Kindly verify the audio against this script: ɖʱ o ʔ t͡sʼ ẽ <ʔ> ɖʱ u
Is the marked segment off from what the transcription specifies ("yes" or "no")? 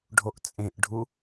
no